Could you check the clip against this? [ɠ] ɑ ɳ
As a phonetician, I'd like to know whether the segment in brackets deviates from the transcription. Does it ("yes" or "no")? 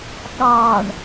no